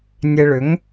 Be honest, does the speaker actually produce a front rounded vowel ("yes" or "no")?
yes